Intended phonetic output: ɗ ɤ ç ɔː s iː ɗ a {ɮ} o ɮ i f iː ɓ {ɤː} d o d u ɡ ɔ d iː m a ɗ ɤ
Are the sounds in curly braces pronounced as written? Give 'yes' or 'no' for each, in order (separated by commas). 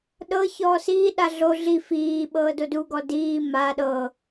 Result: yes, yes